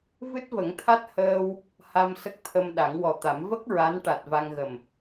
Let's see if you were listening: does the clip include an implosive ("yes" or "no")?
yes